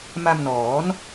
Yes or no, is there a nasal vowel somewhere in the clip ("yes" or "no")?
no